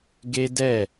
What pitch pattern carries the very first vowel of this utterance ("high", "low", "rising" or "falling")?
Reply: high